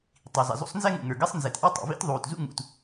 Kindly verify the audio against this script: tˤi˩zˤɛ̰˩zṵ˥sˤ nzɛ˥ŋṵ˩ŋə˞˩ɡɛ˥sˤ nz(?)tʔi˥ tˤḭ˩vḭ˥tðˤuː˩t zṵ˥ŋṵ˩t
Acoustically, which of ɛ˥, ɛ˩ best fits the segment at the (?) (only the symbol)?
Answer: ɛ˩